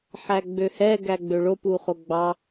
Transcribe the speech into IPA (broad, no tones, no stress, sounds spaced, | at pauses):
ħ æ ɡ͡b ø h ɛ ɡ æ ɡ͡b ø ɭ o p u χ o ɡ͡b ɑ